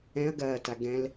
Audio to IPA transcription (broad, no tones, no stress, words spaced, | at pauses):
ɛ̃ɐ̯ ɡɐːta ɡɛ̃l